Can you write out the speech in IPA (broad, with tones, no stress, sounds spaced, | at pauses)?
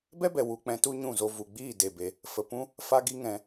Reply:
b ɛ˦ b ɛ˨ w u˧ k͡p ɛ̃˧ t u˦ ɲ ũ˦˨ z o˧ v u˨ ɡ͡b iː˦˨ d e˨ b e˧ | f ə˨ p ũ˦ | f a˦ ɡ i˦ ŋ ɛ̃˧